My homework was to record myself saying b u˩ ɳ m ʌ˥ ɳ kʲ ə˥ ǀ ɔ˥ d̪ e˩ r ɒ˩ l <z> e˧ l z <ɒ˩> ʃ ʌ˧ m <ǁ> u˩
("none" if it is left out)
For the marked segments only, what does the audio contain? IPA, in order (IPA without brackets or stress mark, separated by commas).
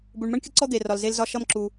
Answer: z, ɒ˧, ǁ